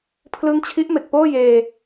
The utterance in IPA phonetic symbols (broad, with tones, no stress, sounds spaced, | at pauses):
pʰ l ɯ˦˥ ŋ t͡ɕʰ i˦˥ ʔ m e˨˩ k̚ p oː˥˩ j eː˧